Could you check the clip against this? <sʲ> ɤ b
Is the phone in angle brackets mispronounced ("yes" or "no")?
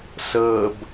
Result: yes